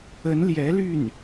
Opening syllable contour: rising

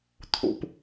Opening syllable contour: low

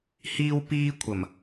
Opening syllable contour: high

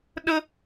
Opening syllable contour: high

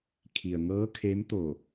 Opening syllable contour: low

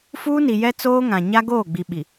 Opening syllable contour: high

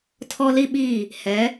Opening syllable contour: high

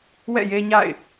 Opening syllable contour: falling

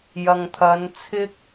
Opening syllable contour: low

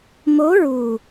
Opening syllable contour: rising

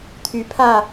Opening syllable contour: rising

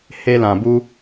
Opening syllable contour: high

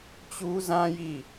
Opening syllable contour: high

